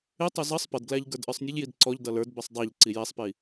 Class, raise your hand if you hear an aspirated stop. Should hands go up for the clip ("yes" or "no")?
no